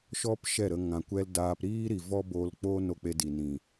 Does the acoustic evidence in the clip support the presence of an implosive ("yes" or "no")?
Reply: no